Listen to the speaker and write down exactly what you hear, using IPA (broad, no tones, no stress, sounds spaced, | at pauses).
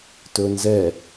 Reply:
t ɵ n z ɛ